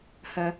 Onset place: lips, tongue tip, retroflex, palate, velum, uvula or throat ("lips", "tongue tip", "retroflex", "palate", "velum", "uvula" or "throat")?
throat